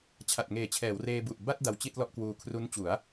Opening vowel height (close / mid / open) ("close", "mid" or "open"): open